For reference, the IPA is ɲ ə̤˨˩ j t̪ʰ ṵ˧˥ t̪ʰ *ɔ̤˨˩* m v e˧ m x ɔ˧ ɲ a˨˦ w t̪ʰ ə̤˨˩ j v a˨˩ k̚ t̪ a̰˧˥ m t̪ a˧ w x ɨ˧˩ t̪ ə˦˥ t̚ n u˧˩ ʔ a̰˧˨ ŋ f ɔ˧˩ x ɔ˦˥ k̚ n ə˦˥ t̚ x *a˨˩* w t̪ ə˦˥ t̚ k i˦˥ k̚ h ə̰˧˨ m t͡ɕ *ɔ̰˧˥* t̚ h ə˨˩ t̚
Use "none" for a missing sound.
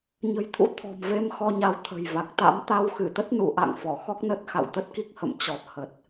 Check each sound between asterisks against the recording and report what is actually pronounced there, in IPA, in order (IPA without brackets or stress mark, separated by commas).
ɔ̤˨˩, a̰˧˨, ɔ˨˩